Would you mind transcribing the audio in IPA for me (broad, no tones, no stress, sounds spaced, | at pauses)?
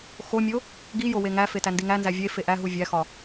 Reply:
x o mʲ o | ɡ i j o w e ŋ æ f e t æ n d i ŋ æ n z æ vʲ e f e ʔ æ ɦ u vʲ æ x ɒ